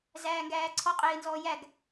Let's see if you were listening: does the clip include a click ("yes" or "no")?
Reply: yes